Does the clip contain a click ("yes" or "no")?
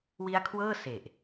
no